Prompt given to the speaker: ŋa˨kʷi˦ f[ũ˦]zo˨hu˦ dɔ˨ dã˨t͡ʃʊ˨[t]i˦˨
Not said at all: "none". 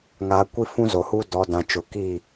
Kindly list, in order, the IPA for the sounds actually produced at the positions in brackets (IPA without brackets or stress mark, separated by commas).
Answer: ũ˦, k